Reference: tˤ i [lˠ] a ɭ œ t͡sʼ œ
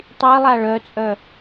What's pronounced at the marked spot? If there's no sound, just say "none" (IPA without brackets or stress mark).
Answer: lˠ